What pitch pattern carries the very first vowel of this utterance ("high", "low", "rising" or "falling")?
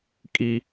high